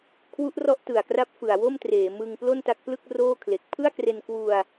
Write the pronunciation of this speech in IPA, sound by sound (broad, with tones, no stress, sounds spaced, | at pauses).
kʰ w u˦˥ ʔ r ɔ˦˥ ʔ t ɯ˨˩ a̯ k r a˦˥ p̚ f ɯ˨˩ a̯ w o˥˩ m t r eː˩˦ m ɯ˧ ŋ p l o˥˩ n t a˦˥ k̚ p l ɯ˥˩ k̚ r oː˥˩ kʰ l e˨˩ k̚ pʰ ɯ˥˩ a̯ k r e˧ n k w u˧ a̯